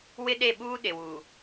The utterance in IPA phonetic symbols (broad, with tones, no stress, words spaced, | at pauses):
wɪ˦ɗe˦˨ɓuː˦ ɗɪ˨wu˨